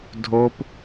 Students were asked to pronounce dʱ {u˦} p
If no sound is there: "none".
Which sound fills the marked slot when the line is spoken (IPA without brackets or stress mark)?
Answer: o˦